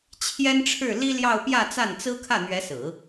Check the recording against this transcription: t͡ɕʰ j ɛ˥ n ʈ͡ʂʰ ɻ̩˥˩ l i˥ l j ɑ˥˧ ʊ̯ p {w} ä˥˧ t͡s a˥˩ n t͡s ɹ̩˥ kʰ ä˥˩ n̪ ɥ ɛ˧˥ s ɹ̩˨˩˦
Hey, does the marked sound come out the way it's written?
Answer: no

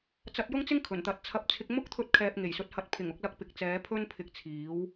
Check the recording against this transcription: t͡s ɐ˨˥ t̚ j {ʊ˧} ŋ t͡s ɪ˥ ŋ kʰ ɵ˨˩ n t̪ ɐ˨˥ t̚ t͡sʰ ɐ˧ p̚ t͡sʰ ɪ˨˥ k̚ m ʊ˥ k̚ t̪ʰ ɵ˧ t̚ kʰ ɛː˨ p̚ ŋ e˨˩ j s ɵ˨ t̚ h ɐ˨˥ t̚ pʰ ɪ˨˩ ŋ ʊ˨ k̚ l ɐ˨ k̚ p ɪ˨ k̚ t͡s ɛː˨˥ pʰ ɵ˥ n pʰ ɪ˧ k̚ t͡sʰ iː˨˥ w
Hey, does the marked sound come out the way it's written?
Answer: no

